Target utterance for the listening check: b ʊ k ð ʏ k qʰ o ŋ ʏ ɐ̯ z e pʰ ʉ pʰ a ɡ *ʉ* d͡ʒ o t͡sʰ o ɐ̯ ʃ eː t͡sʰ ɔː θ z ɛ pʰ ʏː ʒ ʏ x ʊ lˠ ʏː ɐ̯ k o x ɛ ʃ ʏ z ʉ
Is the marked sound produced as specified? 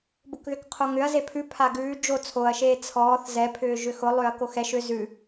no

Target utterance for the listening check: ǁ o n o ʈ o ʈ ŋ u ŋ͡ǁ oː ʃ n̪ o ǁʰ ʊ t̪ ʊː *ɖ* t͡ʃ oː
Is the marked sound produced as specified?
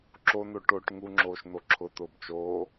no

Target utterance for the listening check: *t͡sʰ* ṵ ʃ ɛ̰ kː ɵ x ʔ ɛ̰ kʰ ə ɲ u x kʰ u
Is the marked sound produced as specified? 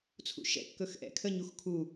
yes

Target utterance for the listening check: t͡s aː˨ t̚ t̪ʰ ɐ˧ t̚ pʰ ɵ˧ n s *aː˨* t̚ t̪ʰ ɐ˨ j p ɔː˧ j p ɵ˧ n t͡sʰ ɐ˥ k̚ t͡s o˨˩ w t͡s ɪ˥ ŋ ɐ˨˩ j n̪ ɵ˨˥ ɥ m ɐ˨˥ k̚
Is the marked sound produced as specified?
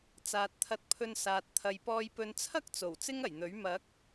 yes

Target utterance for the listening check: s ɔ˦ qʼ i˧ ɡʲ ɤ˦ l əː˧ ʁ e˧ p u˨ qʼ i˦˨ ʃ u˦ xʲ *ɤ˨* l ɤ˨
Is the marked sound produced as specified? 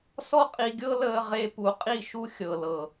yes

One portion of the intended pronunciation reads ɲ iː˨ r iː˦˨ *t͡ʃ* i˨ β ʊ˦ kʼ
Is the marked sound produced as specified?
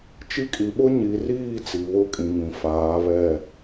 no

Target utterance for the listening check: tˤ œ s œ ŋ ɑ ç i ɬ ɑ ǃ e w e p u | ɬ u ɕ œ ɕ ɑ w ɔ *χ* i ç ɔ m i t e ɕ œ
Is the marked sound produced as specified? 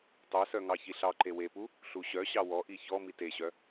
no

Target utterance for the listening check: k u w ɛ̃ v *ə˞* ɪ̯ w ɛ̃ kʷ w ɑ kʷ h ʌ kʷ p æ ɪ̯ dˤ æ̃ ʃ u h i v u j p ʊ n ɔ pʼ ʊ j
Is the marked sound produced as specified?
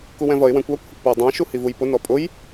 no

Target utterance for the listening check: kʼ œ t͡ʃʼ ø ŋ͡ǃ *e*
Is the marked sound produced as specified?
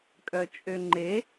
yes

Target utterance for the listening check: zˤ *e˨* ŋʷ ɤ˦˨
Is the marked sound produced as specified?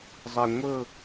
yes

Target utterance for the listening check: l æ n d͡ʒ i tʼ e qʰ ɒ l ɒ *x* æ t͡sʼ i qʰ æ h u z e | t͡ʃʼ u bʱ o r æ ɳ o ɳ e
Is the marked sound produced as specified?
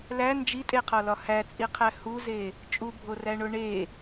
no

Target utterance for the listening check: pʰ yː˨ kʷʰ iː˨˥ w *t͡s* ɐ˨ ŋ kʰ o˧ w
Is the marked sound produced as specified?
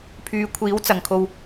yes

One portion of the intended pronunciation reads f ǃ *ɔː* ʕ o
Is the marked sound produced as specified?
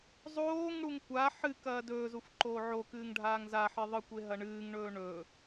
no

